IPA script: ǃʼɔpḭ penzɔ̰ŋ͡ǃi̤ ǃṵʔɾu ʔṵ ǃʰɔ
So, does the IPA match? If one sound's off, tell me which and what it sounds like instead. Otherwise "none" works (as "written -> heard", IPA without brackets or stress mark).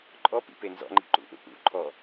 u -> ṵ